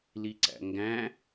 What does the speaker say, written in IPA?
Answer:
liǀæ̰ŋɡæ̃

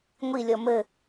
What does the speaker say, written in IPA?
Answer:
ŋʷilʲɔ mɘ

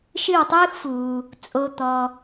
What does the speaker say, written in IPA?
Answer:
ʃɨ˦˨wtˤɯː˦xfuː˨ | t͡sʼo˨t̪ɔ˨

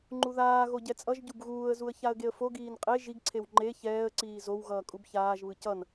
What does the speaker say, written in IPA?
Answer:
ŋ͡ǃuðaːɣo ɟɛt͡sʼʌʒɟub ɣuːə̯zuə̯ çaə̯ɡeə̯foɡiːn qʼe ʒiɡǀʰew ŋ͡ǃe çɛːə̯ǀiː zow ɣʌːkʼubçaːʒβɯ cʌn

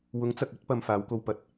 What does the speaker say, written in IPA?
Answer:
wʊ˨˥ŋt͡sɐ˨k̚ɵ˨˥t̚ pɐ˧mfaː˨˥wko˧w pɐ˨˥t̚

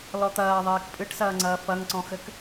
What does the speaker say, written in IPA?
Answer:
lɔt̪ɐː ðˤeːkpʼɨʈsɐːŋ͡ǀɐː fɐŋǀɔ̃xɘk

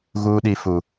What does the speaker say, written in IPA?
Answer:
ɣuː˦ɗi˦fu˦

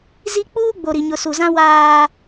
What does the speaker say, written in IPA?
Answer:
zi˦ k͡puː˦ɡ͡bo˨ɾi˨ ɲʊ˨su˨zã˦ waː˦

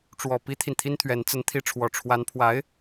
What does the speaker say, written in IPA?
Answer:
ʈ͡ʂwɔ˨˩ pi˥t̪ʰi˨nt̪ʰi˥nt̪ʰɥɛ˧˥n t͡sə˧˥nt̪ʰi˧˥ʈ͡ʂʰwɔ˨˩ ʈ͡ʂʰwa˧˥npʰwa˧˥ɪ̯

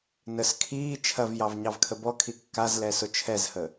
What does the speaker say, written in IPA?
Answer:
nəs kʰiː t͡ʃʰɐvjɑv ɲɑvkʰəbɔkʰi kːazlɛ sʊt͡ʃʰɛzhə

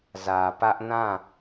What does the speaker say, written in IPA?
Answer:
zä˨pä˦ʔ nã˦˨

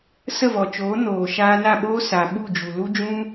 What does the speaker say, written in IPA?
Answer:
sə˦˨vɔ˨t͡ʃoː˨˦ noː˨ ʃaː˧na˦˨ɓoː˦ sa˨ ɓu˦˨d͡ʒu˨lu˦d͡ʒũ˦

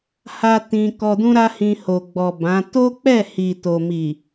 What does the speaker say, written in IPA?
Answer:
ha˧ tĩ˧ kɔ˧dũ˦ɾa˦hĩ˧ ho˨ ɡ͡bɔ˨ bã˨˦ to˦k͡pɛ˦˨ hi˨to˨ mi˨

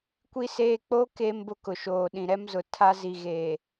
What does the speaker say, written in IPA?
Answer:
kʷi˦seː˦ k͡poː˦ keː˦mbʊ˦kʊ˨ ʃoː˨ ɗĩ˨ɾɛ˦m zʊ˨ tʰa˦zi˨ɣeː˨

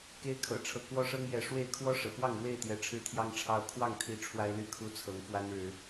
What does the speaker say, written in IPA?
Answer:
ke˦ɪ̯kʰɤ̰˨˩ʈ͡ʂʰɤ˨˦ kwɔ˦ʂɤ˦ŋjɛ˨˦ ʂwe˥˨ɪ̯ kʰwɔ˦ ʂɤ̰˨˩ pwɑ˥˨ŋɻwe˥˨ɪ̯t̪jɛ˨˦ ʈ͡ʂʰɻ̩˦t̪ʰjɑ˦ŋʈ͡ʂʰɑ˦ʊ̯ kʰwɑ˥˨ŋt̪ʰi˨˦ ʈ͡ʂʰwa˦ɪ̯ly˥˨kʰu˦t͡sʰɤ˨˦ŋ fwa˦nɻɻ̩˨˦

